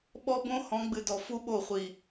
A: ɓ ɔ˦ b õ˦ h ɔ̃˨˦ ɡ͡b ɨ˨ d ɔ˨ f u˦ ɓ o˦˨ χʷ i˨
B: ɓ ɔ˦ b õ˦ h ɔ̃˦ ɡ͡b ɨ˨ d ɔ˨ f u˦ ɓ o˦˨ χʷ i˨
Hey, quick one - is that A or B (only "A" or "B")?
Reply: A